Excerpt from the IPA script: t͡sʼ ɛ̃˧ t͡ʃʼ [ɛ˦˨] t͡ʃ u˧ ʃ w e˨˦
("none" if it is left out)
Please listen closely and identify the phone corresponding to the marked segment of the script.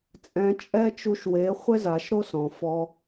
ɛ˦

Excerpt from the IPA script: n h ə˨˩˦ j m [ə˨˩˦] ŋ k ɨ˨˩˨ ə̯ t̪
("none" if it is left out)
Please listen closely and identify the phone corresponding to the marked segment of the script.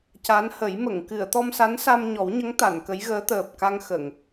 ə˨˩˨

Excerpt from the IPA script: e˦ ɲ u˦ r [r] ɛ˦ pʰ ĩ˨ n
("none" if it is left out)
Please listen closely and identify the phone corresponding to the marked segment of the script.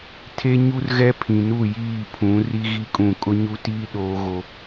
ɣ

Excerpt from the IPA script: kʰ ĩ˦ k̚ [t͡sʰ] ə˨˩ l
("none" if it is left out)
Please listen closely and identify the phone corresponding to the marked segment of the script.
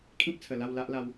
t͡sʰ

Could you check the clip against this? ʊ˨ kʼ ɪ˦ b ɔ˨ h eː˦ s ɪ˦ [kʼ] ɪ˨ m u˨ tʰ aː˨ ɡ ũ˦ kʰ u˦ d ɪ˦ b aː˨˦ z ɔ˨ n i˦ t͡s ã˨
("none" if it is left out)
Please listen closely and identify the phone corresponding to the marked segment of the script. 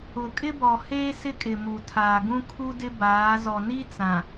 kʼ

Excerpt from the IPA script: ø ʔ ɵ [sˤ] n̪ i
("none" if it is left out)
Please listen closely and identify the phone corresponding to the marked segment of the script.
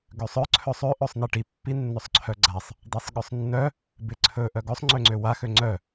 sˤ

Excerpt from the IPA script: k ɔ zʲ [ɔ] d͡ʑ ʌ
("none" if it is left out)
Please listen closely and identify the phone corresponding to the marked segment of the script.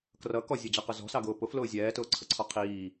ʌ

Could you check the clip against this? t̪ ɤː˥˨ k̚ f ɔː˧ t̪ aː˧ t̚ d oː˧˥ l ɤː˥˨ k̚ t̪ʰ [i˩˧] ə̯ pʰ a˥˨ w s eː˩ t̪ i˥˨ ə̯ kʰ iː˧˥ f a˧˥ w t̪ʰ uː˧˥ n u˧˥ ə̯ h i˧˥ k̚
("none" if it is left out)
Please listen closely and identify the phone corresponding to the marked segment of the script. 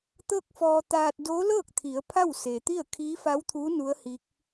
i˩˧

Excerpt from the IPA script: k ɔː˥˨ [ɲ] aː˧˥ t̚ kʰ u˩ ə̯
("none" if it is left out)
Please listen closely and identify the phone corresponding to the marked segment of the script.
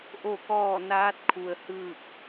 n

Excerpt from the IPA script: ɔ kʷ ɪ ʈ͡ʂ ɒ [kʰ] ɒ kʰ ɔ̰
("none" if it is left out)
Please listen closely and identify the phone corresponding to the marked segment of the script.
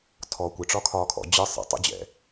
kʰ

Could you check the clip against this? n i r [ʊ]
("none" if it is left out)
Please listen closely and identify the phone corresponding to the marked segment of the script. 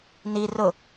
ʊ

